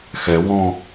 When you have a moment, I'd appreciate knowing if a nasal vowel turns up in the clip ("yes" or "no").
yes